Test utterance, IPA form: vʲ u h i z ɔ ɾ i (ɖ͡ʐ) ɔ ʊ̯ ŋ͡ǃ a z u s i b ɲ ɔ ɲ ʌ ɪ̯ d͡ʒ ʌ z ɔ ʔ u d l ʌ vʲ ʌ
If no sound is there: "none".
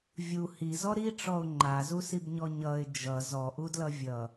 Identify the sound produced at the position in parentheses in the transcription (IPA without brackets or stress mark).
ʈ͡ʂ